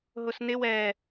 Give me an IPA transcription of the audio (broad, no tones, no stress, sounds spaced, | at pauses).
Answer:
ɦ ʊ s n ɪ w ɛ